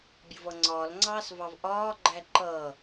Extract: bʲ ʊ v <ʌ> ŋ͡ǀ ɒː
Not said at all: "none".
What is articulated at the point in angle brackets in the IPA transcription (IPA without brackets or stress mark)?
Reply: ʌ